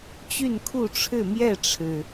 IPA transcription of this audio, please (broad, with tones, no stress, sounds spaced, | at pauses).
t͡ɕ y˥˨ n kʰ u˥˨ ʈ͡ʂʰ ɻ̩˥˨ m j ɛ˥˨ ʈ͡ʂʰ ɻ̩˩